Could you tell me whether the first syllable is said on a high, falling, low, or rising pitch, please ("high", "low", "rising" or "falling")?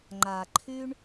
low